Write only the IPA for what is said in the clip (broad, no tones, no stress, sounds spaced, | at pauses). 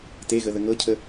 t e ɣ ə ð ə ŋ ɤ cʰ ə